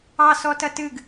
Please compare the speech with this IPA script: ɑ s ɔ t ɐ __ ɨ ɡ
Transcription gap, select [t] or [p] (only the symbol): t